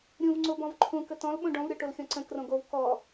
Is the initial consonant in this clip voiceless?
no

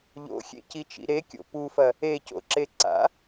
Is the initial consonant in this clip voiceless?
no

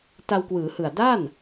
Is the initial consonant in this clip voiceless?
yes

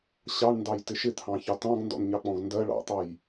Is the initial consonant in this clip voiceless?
yes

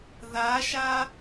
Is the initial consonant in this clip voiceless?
no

